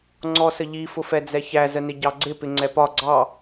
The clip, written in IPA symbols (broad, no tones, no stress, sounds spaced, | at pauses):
ŋ͡ǀ ɔ s ə ʎ i f ʊ f ɛ d͡z ɛ ç æ z ə n ɪ ɟ ɑ ɡ͡ǀ ɪ p ɪ ŋ͡ǀ ɛ p ɒ ɡ͡ǀ ɑ